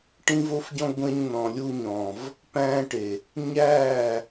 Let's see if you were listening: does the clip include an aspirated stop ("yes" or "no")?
no